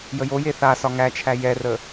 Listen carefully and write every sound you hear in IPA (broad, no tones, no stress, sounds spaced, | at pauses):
j ə j o j e θ a s ɒ ŋ æ t͡ʃʰ æ j ɛ r ə